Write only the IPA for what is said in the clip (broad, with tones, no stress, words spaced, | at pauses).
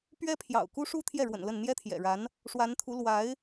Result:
pɥɛ˥pʰjɑ̰˨˩ʊ̯ ku˥ ʂu˥t̪ʰjɛ˥˩ɻwə̰˨˩n lə˥˩n n̪jɛ˥t̪ʰjɛ̰˨˩ɻa˧˥n | ʂwa˧˥nt̪ʰu˧˥ lwa˧˥ɪ̯